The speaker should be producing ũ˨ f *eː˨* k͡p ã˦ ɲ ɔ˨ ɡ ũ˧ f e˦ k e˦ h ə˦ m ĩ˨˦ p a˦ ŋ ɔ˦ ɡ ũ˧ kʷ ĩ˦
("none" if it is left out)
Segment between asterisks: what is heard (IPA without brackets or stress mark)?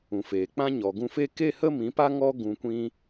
eː˨